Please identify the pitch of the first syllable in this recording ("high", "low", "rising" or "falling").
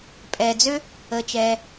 low